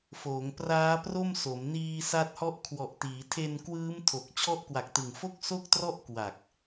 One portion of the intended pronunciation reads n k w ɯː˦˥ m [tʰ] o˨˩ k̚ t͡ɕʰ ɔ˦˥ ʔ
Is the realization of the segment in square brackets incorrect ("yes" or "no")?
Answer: no